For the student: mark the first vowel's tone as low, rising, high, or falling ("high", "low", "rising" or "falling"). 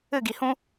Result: falling